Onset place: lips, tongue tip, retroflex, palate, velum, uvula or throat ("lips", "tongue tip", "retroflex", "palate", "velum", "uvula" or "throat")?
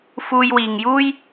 lips